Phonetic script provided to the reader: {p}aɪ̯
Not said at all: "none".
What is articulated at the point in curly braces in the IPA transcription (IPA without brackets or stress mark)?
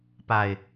p